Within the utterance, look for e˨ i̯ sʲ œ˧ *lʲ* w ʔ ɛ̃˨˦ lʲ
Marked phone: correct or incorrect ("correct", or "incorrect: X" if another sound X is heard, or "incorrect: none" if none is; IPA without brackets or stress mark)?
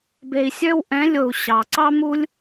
incorrect: none